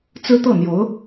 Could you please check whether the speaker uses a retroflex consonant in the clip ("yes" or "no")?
no